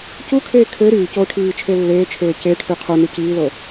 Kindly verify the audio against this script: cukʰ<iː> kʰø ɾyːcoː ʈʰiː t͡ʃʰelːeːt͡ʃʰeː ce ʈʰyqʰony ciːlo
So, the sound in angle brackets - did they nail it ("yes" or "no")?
no